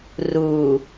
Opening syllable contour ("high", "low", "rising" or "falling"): low